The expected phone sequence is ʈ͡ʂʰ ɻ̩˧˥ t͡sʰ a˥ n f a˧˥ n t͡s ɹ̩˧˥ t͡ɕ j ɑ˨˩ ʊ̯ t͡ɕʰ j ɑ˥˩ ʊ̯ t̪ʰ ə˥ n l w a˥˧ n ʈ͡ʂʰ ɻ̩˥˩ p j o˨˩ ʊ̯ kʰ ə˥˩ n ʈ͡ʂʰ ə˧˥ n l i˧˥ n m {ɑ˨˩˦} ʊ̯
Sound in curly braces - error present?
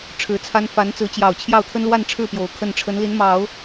no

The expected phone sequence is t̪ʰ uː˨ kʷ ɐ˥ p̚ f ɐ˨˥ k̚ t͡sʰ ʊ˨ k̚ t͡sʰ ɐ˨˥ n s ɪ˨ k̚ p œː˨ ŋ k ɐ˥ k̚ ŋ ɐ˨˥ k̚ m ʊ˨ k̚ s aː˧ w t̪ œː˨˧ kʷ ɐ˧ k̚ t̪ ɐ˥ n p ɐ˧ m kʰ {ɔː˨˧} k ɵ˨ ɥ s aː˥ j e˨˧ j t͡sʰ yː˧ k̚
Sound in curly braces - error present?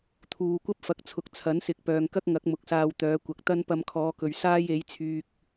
no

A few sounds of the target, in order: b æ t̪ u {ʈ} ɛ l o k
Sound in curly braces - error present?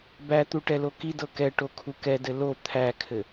no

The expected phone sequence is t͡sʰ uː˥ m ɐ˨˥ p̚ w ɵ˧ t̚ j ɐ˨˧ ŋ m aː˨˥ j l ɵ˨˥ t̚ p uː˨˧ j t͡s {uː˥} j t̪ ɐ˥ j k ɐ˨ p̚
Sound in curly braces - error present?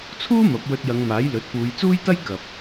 no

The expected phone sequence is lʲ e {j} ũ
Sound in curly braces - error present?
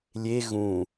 yes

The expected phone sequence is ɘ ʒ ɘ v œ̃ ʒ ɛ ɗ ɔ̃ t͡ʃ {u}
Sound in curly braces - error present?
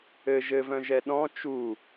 no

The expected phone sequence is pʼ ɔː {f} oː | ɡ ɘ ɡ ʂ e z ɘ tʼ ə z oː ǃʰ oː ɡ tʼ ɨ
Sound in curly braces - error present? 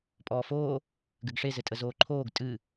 no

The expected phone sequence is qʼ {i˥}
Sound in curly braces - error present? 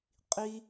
no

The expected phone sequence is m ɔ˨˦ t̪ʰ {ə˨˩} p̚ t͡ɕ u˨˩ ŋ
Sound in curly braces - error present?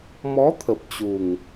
no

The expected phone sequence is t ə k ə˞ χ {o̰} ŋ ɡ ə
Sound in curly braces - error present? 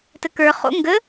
no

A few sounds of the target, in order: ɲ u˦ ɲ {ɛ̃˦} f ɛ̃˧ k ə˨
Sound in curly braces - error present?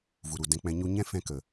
no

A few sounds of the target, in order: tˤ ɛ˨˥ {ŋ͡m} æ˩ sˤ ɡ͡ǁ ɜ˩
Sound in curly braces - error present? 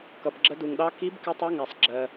yes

